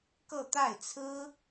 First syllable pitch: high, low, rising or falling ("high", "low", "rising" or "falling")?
falling